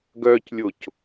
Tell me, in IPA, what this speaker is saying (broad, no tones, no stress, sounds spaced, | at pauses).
ɡ œ c lʲ o c